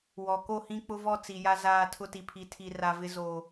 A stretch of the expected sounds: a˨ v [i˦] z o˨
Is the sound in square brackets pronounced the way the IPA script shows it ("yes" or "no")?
no